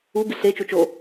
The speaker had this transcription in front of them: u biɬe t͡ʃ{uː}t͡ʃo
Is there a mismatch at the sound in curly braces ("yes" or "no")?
yes